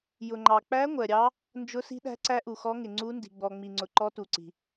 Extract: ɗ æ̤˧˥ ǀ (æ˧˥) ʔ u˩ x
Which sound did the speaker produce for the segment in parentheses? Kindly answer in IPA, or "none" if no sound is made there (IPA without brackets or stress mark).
æ˧˥